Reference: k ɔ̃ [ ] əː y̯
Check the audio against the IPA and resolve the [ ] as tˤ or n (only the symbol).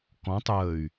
tˤ